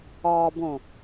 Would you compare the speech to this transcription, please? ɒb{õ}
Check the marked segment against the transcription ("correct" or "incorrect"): correct